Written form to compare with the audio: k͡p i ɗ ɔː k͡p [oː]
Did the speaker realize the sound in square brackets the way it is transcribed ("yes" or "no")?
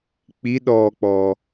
no